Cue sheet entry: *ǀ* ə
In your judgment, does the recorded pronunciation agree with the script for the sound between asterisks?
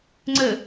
no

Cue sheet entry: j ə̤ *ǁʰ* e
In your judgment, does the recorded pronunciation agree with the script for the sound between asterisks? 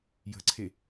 no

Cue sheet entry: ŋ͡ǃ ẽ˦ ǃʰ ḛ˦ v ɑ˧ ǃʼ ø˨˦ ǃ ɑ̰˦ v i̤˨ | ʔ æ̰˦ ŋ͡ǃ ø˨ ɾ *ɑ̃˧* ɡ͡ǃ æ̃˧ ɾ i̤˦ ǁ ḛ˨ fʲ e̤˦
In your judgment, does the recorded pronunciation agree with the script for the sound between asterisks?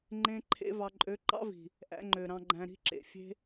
yes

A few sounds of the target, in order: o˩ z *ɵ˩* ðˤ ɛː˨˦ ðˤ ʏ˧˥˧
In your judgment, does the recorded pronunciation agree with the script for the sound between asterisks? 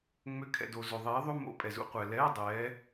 no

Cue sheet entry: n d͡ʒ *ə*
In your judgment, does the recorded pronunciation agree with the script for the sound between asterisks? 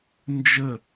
yes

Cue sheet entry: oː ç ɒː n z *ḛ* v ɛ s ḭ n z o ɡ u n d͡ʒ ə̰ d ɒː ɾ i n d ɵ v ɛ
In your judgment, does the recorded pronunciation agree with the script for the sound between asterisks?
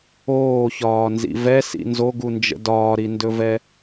no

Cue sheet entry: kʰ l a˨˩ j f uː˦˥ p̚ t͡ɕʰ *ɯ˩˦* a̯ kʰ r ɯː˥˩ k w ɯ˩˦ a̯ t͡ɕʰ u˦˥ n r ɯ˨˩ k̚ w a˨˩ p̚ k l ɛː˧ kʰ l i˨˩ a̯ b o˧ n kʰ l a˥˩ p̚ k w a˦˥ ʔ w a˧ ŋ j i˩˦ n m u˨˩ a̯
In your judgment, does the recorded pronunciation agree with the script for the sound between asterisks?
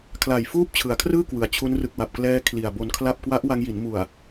yes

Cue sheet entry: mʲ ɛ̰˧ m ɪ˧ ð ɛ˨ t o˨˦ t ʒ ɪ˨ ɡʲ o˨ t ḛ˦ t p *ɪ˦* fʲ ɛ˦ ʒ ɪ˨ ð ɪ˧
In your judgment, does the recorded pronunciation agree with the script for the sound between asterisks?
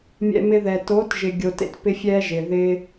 yes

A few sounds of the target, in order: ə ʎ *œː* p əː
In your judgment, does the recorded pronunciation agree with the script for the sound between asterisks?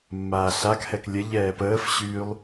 no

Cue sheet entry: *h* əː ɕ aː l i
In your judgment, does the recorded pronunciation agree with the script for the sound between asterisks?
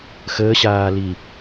no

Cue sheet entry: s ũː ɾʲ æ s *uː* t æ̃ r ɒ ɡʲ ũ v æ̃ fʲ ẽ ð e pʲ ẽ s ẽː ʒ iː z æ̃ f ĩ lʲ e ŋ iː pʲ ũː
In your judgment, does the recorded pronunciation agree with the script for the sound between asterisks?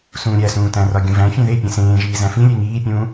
no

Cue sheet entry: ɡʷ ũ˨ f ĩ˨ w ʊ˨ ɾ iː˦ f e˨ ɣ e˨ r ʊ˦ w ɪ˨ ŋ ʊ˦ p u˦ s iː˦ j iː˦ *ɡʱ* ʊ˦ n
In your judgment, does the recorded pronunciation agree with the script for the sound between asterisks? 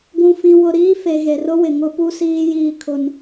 no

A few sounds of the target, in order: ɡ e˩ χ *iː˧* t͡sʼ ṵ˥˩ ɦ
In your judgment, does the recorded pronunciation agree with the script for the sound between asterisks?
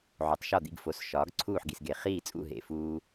no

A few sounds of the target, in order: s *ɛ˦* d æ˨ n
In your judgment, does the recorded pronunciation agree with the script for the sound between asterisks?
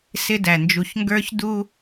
no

